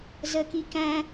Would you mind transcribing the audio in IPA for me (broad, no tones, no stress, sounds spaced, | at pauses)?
z ə k i k æ̃